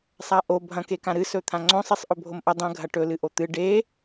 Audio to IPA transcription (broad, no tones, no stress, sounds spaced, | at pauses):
sˤ a ʔ o bʱ ɐ̃ k e k ã ɾ ɨ s ɵ t̪ʰ ã ŋ͡ǀ õ sˤ i sˤ ʔ ɵ bʱ o m ʔ ɐ dˤ ɐ̃ ɡʱ ɐ ʈ ɵ l ɨ ʔ o t̪ ɨ ɖ e